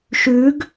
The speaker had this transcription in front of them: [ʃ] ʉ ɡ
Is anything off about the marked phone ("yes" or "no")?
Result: no